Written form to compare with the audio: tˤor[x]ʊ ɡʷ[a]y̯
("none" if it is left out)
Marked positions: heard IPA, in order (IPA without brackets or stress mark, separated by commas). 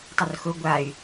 x, a